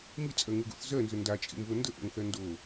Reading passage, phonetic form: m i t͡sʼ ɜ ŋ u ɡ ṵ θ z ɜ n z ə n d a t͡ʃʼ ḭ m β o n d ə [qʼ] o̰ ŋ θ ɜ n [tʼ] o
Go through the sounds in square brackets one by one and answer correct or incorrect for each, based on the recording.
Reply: incorrect, incorrect

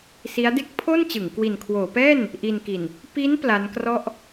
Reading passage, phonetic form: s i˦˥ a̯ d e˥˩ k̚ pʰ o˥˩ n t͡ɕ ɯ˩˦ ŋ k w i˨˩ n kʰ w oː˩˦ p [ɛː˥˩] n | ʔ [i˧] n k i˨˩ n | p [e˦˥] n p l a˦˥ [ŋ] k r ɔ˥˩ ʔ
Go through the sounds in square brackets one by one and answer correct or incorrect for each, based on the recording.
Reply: correct, correct, incorrect, incorrect

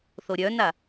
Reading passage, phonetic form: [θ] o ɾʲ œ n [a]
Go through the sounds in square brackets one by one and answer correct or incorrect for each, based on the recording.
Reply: correct, correct

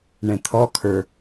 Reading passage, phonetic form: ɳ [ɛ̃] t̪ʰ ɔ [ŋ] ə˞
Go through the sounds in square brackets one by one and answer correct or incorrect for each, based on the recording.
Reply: correct, incorrect

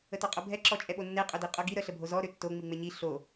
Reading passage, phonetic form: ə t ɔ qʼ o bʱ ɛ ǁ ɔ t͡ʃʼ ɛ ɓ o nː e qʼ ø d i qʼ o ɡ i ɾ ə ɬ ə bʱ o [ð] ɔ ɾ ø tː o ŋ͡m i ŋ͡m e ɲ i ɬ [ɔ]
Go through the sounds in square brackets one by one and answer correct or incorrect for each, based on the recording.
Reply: incorrect, incorrect

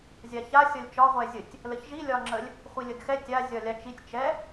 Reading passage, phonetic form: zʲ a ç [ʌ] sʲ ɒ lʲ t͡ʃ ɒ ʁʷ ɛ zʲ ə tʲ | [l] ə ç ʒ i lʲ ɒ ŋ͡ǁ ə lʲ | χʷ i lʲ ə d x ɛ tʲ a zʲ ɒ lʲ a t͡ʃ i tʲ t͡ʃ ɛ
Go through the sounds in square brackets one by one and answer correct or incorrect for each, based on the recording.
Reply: incorrect, correct

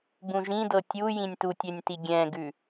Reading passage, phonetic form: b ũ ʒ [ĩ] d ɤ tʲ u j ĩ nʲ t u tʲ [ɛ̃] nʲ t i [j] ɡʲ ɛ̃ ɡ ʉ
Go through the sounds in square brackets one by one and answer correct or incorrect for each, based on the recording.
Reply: correct, incorrect, incorrect

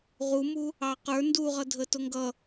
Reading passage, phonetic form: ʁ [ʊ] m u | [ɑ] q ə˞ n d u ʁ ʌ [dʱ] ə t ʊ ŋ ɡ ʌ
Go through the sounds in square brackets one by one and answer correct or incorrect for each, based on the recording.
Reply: incorrect, correct, correct

